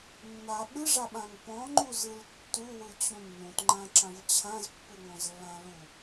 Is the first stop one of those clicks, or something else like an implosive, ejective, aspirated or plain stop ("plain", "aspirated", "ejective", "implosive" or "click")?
implosive